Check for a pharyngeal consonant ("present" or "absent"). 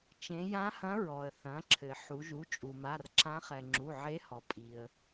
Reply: present